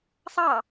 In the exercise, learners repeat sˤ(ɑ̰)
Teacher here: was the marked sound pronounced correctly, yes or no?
no